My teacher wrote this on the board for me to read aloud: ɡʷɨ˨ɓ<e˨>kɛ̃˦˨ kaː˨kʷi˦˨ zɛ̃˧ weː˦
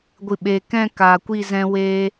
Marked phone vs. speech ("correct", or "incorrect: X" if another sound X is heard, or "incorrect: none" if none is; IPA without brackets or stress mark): correct